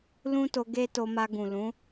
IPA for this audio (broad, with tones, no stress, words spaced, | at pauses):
lũ˦to˧ ɡe˦to˧ma˧ɡũ˨ lũ˨˦